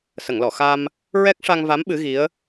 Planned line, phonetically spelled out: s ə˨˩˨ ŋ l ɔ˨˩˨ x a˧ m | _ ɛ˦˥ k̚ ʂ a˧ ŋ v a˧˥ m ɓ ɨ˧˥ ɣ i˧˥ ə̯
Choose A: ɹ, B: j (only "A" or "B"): A